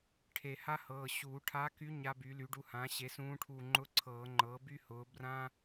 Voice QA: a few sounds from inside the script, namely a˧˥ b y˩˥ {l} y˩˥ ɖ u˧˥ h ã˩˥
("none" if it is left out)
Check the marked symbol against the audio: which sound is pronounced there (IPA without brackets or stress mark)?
l